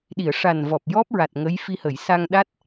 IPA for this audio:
ɗ i˨˩˨ ə̯ ʂ a˨˩ n v ɔ˨˩ p̚ j ɔ˦˥ p̚ ɹ a˨˩ t̚ ŋ ə˧˥ j f i˧ h ə˨˩˨ j s a˧ ŋ ɗ a˦˥ t̚

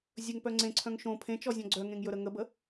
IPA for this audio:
zʲ ɵ ŋ p œ ŋ͡ǀ ẽ ǀʰ œ̃ ŋ ʃ õ pʰ ẽ t͡ʃ ɔ zʲ ɔ̃ ɡ͡ǀ œ ŋ ẽ ŋ j ɵ ɾ ə ŋ ə b ə

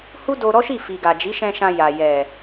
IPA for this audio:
h u˦ d o˧ ɾ ɔ˦ ʃ i˦˨ f i˨ ɡ a˨ d͡ʒ i˨˦ ʃ ɛ̃˧ ʃ ã˧ j a˨ j ɛ˨

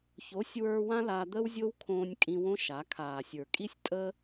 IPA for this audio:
ç o˨˦ sʲ w ə˞˧ w ã˦ l a˧ d̪ əː˦ w zʲ o˦ w kʰ õː˧ nʲ kʼ ĩ˧ w õ˦ ʃ a˨˦ kʰ aː˨ sʲ ə˞˨ kʼ i˦ sʲ tʼ ə˦

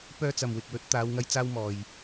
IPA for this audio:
p œː˧ t͡s ɐ˨ m w ɪ˨ k̚ w ɵ˨˥ t̚ t̪ aː˨˧ w ŋ ɐ˧ j t͡s aː˧ w m ɔː˨ j

